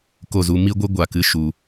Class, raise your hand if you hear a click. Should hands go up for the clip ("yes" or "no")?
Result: no